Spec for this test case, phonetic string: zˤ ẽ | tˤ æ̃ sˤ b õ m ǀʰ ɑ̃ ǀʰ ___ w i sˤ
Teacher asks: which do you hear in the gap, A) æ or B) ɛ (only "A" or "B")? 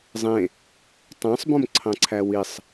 A